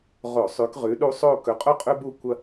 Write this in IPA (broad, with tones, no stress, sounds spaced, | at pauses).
ʁ o˧˩˧ sˤ ʉ˨˦ k ʁ ʉ˨˦ ɗ u˦ sˤ o˦˨ k ɵ˨˦ qʼ o˦ qʼ ɵ˦ b u˦˨ kʷ ɐ˦